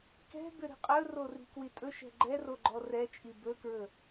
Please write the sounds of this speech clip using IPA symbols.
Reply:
k ɛ̤ b ʏ ɾ i̤ qʼ ɵ r o r i̤ k w i tʼ ɵ ʃ ɛ̤ ɡ͡ǃ ɛ r o ɡ͡ǃ ɔ r ɛ t͡ʃʼ i b ɵ k ɹ ɵ

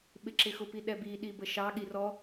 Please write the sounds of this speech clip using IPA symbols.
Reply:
ɓ ɪ ǁ ɪ x ʊ p i ɗ ɛ b i ɗ i b ə ʃ ɑ ɠ i r ɔ

